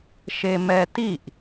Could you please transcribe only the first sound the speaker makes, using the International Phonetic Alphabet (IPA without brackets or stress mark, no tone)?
ʃ